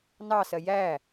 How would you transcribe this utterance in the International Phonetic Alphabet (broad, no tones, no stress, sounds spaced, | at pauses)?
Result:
n ɑ s ɜ j æ